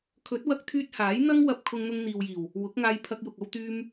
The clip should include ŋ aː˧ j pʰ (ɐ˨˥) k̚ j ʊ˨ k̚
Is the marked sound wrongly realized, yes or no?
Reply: yes